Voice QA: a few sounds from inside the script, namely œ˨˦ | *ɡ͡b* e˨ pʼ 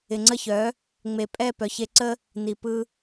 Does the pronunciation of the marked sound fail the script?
yes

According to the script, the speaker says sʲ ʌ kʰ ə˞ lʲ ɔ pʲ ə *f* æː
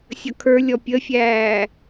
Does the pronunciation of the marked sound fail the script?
yes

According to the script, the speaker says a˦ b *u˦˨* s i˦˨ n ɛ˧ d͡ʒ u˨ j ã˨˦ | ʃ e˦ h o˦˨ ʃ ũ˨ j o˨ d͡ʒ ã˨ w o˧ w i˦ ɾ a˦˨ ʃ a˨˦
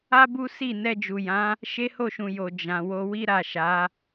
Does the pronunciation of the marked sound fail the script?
yes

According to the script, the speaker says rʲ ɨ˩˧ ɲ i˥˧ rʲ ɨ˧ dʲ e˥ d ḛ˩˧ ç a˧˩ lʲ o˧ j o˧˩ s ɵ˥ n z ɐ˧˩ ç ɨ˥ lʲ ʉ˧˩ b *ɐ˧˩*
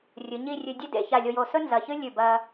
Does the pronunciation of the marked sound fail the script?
yes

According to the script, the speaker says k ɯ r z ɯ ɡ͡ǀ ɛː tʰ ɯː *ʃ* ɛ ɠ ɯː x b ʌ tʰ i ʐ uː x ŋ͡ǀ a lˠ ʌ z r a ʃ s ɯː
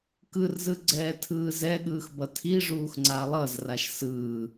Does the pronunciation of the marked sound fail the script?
yes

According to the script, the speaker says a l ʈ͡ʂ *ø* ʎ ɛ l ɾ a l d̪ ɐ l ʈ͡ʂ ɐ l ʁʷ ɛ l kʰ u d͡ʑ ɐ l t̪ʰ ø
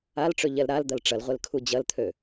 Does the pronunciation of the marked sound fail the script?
no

